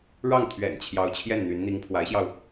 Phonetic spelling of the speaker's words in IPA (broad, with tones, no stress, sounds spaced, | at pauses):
ɻ ɑ˥˩ ŋ t̪ʰ ɥ ɛ̰˨˩ n t͡ɕʰ j ɑ˧˥ ʊ̯ t͡ɕʰ j ɛ˥˩ n n̪ y˧˥ n n̪ i˧˥ ŋ pʰ w a˧˥ ɪ̯ ɕ j ɑ˧ ʊ̯